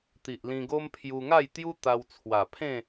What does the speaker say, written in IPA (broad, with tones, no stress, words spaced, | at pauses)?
t̪i˨ʔlĩ˧ɡo˦m pʰju˧ŋa˥˧jt̪ju˦ t̪a˧w t͡sʰwa˨˩ pʰẽ˥˧